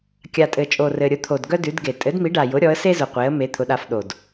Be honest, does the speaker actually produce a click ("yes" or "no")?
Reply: no